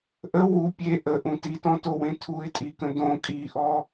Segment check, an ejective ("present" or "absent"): present